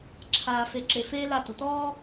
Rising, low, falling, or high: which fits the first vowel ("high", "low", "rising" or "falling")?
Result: low